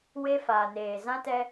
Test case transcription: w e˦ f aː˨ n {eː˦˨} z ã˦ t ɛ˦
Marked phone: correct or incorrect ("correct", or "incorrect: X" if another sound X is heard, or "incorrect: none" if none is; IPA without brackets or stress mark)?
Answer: incorrect: eː˨